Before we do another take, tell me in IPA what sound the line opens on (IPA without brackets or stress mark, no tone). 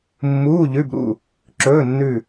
mː